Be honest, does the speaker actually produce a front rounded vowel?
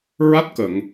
no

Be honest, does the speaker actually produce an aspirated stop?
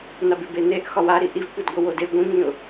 no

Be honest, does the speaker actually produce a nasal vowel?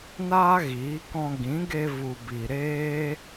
yes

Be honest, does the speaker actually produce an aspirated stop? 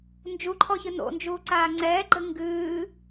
yes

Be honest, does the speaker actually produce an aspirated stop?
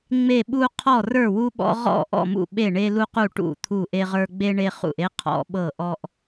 yes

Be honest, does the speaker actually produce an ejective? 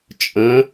yes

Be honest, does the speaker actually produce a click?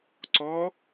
yes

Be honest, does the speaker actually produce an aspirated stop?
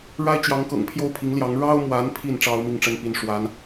yes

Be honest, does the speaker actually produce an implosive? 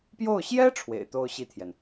no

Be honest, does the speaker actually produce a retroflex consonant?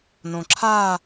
no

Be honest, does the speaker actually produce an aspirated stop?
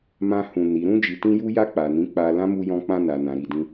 no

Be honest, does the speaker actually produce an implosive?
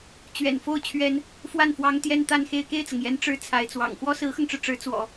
no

